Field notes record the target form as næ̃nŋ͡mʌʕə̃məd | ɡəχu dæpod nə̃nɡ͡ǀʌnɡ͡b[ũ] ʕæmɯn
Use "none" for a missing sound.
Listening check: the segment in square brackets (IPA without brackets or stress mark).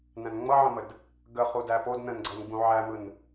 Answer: ũ